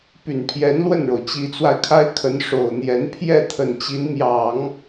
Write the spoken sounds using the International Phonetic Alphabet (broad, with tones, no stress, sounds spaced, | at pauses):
p y˨˩ n pʰ j ɛ˧˥ n l w ə˥˩ n ɻ o˩ ʊ̯ t͡ɕ i˧˥ t͡s w a˧ ɪ̯ kʰ a˥ ɪ̯ kʰ ə˧˥ n ʂ o˨˩ ʊ̯ n̪ j ɛ˧˥ n pʰ j ɛ˥˩ t̪ʰ ə˨˩ n t͡ɕ i˧˥ n m j ɑ˨˩˦ ŋ